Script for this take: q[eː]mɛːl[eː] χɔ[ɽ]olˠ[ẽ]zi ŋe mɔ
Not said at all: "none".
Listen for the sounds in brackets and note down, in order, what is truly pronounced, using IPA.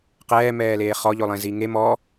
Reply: ɛː, eː, ʎ, ẽ

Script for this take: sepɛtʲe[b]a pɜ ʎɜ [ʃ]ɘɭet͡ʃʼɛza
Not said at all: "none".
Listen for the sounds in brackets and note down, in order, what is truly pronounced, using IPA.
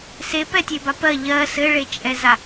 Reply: b, s

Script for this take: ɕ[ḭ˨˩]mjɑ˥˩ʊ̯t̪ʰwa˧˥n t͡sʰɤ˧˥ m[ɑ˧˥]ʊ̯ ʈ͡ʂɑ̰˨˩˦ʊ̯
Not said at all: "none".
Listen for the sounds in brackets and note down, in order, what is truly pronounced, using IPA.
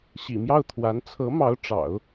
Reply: ḭ˨˩, ɑ˧˥

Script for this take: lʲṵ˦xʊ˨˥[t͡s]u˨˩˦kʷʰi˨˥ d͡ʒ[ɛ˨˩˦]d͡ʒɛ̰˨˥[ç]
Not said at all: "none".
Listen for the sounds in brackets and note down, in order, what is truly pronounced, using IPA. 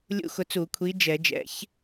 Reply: t͡s, ɛ˨˩˦, ç

